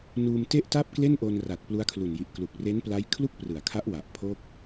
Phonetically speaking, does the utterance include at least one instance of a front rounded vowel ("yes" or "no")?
no